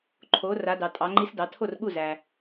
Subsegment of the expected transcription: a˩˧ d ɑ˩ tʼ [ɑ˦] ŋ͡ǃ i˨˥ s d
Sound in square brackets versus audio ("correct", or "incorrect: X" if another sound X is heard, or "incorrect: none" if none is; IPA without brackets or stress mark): incorrect: ɑ˩˧